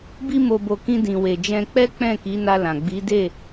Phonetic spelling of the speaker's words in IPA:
bi˧mo˨bo˨ kĩ˧dĩ˨we˨d͡ʒɛ̃˧ k͡pɛ˦ k͡pɛ̃˦˨ki˨˦na˧ lã˨ ɡ͡bi˨˦de˦˨

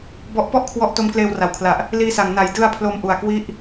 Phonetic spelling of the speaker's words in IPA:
bɔ˦˥ʔ pɔ˥˩ʔkʰwɔ˦˥ʔ to˦˥mkleː˧wra˩˦wkʰla˨˩ʔ | liː˧sa˩˦ŋ na˩˦jdɯ˧a̯ pʰlo˧mʔu˨˩a̯kwi˦˥ʔ

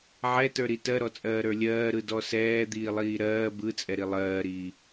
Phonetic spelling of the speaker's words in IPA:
ʕɛtə˞ɾi tɜɾɔt͡sʼɜːɾə˞ lʲɜːɾɯdɔ sɛːd̪iːlˠiː ɾɜː bɯt͡sʼɛɾi lˠɜːɾiː

